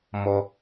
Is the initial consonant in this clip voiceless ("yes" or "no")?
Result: no